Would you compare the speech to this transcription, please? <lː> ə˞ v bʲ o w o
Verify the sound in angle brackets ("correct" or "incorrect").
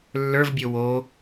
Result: correct